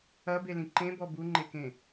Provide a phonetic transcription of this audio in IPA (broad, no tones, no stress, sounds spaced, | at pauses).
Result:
ɐ b e l ĩ ǃ ẽ b ɔ b u ŋ͡ǃ e k ẽ